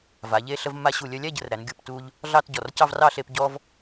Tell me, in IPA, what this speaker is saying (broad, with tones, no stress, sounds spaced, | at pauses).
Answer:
v a˩˧ ʎ e˥˧ ɬ ə˧ v mː a˧ ɕ u˧˩ lʲ œ˧ lʲ æ˥˧ ɟ ə˩˧ r ɾ æ˩˧ n ɡʲ u˧˩ p t u˧ ʎ | ɮ ɑ˥˧ t ɟ ɔ˧˩ r c ɑ˥˧ v r ɑ˥˧ ɬ e˧ p ɟ ɔ˧ v